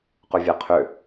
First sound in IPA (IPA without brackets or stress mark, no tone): q